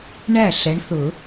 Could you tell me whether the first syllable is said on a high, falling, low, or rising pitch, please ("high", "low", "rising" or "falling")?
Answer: falling